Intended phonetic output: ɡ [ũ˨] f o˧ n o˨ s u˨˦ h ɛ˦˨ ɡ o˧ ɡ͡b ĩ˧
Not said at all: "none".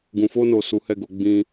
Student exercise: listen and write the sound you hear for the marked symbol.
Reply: ũ˨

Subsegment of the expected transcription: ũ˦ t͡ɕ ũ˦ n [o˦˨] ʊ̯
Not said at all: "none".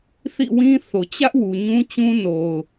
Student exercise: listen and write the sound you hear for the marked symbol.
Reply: o˨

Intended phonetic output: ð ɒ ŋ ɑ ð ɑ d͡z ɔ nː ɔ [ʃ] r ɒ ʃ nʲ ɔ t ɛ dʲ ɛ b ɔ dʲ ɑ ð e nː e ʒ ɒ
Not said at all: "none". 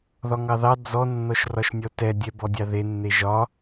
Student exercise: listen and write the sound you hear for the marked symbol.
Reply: ʃ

